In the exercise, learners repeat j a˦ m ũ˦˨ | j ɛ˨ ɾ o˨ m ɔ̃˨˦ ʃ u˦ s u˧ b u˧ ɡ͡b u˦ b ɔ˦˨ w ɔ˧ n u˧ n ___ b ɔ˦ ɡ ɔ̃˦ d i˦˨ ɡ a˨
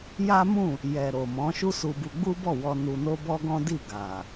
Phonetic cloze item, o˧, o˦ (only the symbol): o˦